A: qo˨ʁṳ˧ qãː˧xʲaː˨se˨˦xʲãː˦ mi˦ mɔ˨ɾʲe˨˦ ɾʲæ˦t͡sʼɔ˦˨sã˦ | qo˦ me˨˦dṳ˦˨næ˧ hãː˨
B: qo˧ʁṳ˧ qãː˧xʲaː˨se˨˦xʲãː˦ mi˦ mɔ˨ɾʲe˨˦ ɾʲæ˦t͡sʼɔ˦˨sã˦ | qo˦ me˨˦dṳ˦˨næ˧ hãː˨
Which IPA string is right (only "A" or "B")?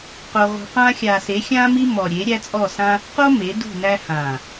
B